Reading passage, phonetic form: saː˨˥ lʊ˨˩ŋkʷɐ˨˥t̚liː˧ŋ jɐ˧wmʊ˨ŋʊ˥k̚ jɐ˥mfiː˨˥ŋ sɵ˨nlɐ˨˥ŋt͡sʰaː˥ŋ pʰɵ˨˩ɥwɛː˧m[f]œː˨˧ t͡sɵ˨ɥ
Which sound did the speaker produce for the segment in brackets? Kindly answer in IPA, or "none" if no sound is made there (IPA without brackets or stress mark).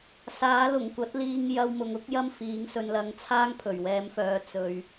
f